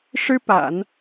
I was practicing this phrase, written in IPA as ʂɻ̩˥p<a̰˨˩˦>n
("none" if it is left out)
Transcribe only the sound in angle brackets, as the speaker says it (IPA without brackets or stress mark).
a̰˨˩˦